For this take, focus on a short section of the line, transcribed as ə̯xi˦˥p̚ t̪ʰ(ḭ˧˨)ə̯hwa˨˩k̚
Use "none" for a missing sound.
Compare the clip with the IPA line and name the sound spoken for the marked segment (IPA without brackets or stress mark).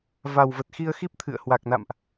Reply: ɨ̰˧˨